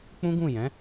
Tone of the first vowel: high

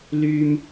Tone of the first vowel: high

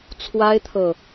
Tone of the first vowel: high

